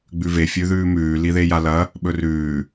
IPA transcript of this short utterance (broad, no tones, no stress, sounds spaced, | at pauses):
ɡ͡b ʉ v e fʲ ʉ ð ʉː m ʉː l i ð e j a l ɐ | ɓ ɵ r ʉː